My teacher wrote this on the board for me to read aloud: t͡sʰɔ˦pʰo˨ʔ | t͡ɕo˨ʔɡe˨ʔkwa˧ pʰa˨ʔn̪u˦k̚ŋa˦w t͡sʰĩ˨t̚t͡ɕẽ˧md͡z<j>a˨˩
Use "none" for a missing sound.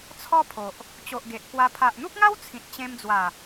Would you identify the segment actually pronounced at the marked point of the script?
w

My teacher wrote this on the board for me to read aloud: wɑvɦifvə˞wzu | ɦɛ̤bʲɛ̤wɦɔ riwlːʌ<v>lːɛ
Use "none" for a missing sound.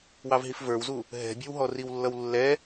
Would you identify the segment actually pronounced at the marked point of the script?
w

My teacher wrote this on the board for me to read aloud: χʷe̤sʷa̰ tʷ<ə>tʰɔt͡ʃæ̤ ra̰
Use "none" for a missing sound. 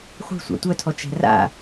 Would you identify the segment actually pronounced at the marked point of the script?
œ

